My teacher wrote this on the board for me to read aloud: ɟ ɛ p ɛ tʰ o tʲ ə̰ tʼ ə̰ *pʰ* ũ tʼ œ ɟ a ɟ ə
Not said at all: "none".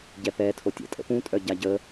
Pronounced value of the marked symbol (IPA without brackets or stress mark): p